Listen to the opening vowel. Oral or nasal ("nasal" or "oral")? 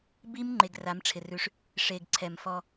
oral